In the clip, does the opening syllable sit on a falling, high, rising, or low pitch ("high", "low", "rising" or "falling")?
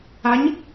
rising